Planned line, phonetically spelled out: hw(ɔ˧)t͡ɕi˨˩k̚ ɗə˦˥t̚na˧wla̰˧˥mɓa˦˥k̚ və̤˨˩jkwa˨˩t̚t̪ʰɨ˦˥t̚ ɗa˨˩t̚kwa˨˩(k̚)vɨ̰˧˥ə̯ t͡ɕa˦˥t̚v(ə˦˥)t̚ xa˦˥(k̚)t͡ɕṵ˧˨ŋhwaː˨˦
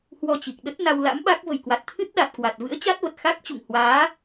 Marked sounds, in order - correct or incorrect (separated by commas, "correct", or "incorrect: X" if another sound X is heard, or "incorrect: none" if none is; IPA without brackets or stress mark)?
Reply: correct, incorrect: t̚, incorrect: ə˨˩, correct